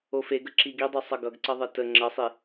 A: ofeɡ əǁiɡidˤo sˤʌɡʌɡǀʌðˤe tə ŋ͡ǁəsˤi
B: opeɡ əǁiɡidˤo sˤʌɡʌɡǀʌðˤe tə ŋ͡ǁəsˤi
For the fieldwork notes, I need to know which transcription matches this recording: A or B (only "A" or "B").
A